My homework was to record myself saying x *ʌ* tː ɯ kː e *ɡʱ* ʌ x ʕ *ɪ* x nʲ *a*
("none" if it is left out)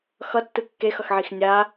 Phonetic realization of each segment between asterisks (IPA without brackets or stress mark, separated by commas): ʌ, x, i, a